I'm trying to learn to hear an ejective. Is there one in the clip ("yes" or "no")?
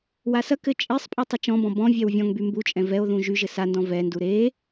yes